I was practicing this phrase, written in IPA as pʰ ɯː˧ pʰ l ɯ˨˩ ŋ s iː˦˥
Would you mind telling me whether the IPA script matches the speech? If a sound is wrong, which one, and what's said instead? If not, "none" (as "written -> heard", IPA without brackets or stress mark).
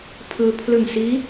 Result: none